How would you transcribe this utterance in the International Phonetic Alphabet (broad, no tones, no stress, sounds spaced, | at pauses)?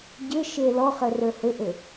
ɟ ɘ ʃ e l ɔ χ ə r ə˞ h ɘ ʔ ɘ